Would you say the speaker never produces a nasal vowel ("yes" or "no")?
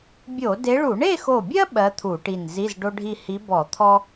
yes